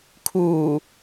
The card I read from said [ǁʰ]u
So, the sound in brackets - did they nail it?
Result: no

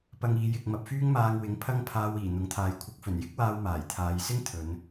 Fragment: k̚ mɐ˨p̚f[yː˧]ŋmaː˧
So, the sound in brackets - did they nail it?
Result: no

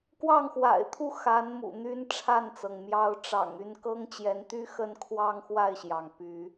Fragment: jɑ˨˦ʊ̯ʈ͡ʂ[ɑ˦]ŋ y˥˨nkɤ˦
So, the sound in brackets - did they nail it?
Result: no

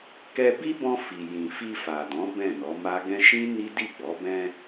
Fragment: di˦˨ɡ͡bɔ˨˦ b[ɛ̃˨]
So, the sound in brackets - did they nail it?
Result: no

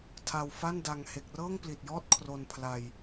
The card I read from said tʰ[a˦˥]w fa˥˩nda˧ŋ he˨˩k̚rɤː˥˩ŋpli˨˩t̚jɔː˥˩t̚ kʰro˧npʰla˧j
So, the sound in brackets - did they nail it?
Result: no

